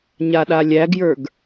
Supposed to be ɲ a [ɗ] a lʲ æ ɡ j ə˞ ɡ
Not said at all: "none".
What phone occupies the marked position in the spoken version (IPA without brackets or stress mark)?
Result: ɗ